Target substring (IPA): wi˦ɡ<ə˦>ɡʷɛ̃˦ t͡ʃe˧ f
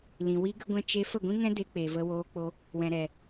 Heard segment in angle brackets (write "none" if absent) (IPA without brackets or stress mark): ə˦